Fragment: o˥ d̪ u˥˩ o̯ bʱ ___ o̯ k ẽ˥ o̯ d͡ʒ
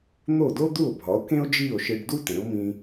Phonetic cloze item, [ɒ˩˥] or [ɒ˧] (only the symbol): ɒ˩˥